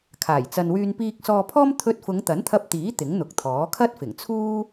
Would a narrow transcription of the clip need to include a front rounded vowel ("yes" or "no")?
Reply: yes